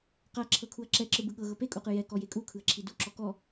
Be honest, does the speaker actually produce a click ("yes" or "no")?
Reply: yes